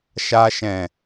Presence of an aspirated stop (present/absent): absent